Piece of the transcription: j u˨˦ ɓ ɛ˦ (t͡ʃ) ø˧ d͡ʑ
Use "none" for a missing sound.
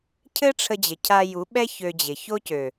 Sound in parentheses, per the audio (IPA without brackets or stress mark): ç